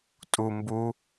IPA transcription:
tʼu mbu

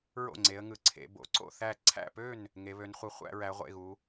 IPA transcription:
ɹo̰˥˨ŋ͡ǀe˨˦ə̯ ŋɯ˨˦ǀʰḛ˨˦ bo̰˨˦ǀo̰˥˨θæ˥˨ ǀʰæ̰˥˨pø˥˨n | ŋe˨˦βø˨˦nχʷɯ˨˦ χʷæ̰˨˦ɹæ˨˦ʁʷḛ˥˨ɣu˨˦

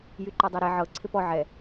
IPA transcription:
jyǃɔdˤɛɾe ʕɤ ǀʰɪpɔ ʕɛ

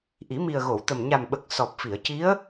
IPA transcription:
ʔi˨˩˦mi˨˩ə̯ɣo˨˩˨wt̪ə˨˩m ɲa˨˩mɓə˨˩k̚ sɔ˨˩p̚ fi˨˩˨ə̯ci˧˥ə̯

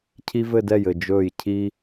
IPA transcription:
cʰi˥vɘ˥˧dɛ˥˩jɘ˥˩ d͡ʒɵː˥˩jcʰi˥

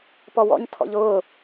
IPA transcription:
pɔwɔ̰ɲ tʰɔ̰ʎʊː

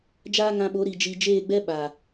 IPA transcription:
d͡ʒaː˦ŋã˧ɓo˨˦ ɾi˨ d͡ʒi˨d͡ʒeː˦˨ɡ͡bɛ˦ ɓa˨

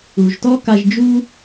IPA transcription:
u˨ʒtɔ˦ka˧ʒd͡ʒu˦

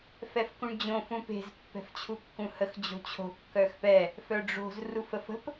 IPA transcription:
fɛfkũɳd͡ʑõ fũpe̤z pːɛ̤ft͡ɕʰukːũhəx d͡ʑo̤t͡ɕʰo̤ kːœxpɛ | fœɖ͡ʐo̤z rufəfə̤p

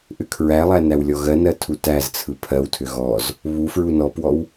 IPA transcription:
ʔʏkʰɹælˠæ næwlʲɔɣɜnɜ tʰutæzt͡sʰɯ pʰɜwtʰʏ ɣɔz | βu fɹunɔpwɔw

